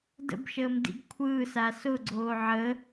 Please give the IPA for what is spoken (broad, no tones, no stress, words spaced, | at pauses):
də̰bʃəːmdḭɡ kʷʰɯːsa sʊɡ͡ǀoː ʕə